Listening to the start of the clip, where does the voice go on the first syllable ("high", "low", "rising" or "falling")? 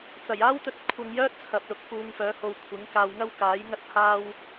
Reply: low